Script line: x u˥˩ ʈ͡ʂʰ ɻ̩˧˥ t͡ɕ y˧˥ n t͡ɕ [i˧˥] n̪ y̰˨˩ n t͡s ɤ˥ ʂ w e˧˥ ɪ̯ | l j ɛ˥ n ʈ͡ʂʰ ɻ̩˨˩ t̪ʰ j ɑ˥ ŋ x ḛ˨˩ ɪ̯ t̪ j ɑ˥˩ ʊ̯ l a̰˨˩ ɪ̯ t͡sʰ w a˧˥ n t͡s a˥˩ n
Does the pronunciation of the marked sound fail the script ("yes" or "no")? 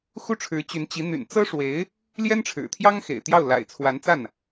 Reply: no